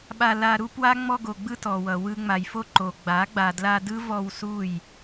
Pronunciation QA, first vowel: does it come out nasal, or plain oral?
oral